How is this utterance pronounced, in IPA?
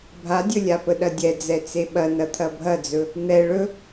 bʱ a dʲ ɵ lʲ a p ə ɗ ɐ dʲ ɛ d͡z ɛ t͡s e ɓ ɐ n ɐ t̪ʰ ɐ bʱ ɐ d͡z ɵ | n̪ ɛ ɭ ɵ

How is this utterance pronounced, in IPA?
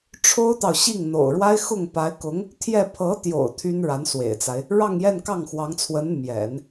ʈ͡ʂʰ o˥ ʊ̯ t̪ ɑ˨ ʊ̯ ɕ i˥˩ ŋ n̪ o̰˨˩ ʊ̯ ɻ w a˥ ɪ̯ x ʊ˥˩ ŋ p a˧˥ ɪ̯ k ʊ˧˥ ŋ | t̪ʰ j ɛ˥˩ pʰ ɤ˧˥ t̪ j o̰˨˩ ʊ̯ t̪ʰ y˥ n ɻ a˧˥ n s w ḛ˨˩ ɪ̯ t͡s a˦ ɪ̯ | ɻ ɑ˥˧ ŋ j ɛ˥˧ n k ɑ˥˩ ŋ x w ɑ˧˥ ŋ t͡sʰ w ə˧˥ n m j ɛ̰˨˩˦ n

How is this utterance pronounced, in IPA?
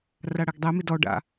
r a ɽ æ ɡ dˤ ɛ m ɪ d ɔ ɖ a̰

